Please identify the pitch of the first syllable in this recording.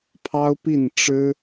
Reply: high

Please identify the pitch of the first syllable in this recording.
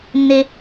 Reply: low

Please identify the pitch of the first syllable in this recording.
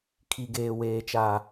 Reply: high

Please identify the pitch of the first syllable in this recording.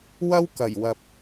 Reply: high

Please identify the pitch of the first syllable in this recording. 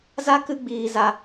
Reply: high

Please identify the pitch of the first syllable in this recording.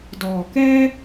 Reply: low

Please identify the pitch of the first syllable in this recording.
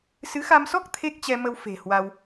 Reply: rising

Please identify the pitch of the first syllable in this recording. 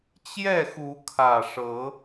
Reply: falling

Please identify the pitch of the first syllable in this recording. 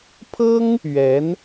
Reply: high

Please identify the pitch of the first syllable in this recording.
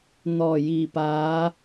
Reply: low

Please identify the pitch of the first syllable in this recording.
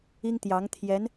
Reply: high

